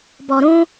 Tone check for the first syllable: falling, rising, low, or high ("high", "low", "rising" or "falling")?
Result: low